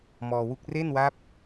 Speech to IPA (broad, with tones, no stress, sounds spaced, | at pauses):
m ɔː˧ w u˥˩ k̚ r e˥˩ n w a˦˥ p̚